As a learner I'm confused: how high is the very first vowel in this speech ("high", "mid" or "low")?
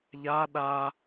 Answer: low